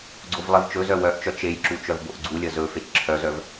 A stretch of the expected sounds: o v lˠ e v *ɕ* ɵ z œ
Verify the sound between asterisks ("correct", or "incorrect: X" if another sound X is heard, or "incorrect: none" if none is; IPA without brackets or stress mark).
incorrect: t͡ʃ